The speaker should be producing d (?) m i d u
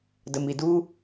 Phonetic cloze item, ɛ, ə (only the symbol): ə